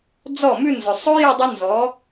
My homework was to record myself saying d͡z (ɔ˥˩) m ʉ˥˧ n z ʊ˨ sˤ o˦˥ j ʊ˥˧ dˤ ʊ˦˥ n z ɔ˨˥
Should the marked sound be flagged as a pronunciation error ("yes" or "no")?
no